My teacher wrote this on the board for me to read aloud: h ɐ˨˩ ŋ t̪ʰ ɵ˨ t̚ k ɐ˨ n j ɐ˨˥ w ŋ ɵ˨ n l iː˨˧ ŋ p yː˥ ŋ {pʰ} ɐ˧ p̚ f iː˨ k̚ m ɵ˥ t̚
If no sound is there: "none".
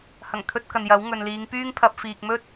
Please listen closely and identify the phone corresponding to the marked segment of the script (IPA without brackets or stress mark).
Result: pʰ